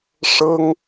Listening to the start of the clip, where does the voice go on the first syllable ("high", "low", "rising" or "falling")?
high